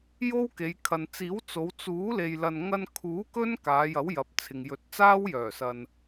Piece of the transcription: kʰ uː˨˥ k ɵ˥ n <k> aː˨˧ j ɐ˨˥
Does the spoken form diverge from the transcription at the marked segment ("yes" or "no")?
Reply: no